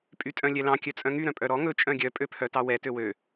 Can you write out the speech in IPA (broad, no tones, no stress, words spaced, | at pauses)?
pʼytʼœ̃lʲɛlɑ̃ kʲœt͡sʼœ̃ŋy ɾœ̃pʼœɾɔ ŋɵ t͡ʃʼœ̃ɡʲœ pʼøpʰœtɑwɛ tøwø